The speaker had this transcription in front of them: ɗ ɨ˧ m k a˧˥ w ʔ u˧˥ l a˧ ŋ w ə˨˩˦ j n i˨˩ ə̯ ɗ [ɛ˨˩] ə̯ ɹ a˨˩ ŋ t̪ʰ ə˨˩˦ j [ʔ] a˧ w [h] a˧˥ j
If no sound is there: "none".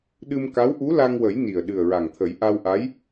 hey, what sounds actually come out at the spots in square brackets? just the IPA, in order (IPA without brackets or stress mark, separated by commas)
ɨ˨˩, ʔ, ʔ